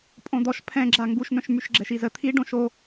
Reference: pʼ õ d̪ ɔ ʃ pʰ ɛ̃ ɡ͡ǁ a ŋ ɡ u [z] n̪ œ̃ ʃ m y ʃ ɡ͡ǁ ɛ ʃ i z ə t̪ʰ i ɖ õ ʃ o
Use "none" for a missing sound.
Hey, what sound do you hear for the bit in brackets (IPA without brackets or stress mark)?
ʃ